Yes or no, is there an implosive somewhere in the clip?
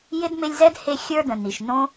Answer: no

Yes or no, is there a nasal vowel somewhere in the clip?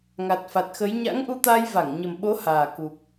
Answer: no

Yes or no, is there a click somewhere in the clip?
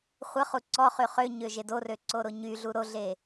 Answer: yes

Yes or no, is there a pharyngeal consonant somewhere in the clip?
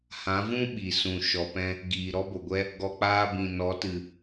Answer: no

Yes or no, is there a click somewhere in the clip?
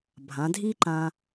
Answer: yes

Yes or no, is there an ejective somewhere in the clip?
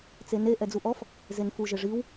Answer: no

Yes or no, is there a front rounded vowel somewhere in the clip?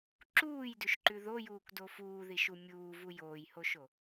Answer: no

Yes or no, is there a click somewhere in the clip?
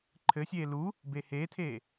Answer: yes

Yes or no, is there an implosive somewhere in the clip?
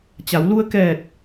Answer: no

